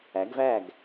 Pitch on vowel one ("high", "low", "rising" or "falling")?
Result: rising